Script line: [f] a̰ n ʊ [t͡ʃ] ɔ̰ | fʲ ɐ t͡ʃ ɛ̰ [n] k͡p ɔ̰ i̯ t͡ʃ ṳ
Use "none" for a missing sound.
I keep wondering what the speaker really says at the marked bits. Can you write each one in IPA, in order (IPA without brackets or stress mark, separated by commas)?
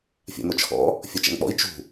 fʲ, t͡ʃʰ, n